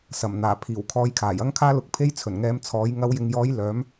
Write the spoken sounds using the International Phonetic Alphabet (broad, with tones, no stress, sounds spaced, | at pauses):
s ɐ˨˩ m n̪ aː˨˩ pʰ iː˨˩ w kʰ ɔː˨˧ j kʰ aː˨˩ j ɐ˧ ŋ kʰ aː˧ l ʊ˨ k̚ pʰ e˧ j t͡sʰ ɵ˨˩ n ŋ ɛː˧ m t͡sʰ ɔː˨˥ j ŋ ɐ˨˧ w j ɪ˨ ŋ j ɔː˨˧ j l œː˨˥ m